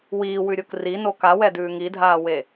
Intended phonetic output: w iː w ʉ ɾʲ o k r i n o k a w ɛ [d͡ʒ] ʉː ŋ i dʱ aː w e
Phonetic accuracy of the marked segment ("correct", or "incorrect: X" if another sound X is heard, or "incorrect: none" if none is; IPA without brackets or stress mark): incorrect: d